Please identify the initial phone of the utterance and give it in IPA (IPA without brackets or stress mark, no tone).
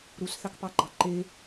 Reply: ɾ